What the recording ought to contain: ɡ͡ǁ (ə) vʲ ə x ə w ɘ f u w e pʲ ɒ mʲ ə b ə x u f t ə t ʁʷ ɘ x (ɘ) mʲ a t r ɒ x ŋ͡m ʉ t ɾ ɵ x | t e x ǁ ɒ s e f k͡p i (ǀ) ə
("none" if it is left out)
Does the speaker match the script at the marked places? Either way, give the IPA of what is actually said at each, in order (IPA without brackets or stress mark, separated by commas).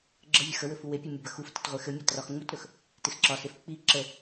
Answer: ə, ɘ, ǁ